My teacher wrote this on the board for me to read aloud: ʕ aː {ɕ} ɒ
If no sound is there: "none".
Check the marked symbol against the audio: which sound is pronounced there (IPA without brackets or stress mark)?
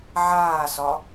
s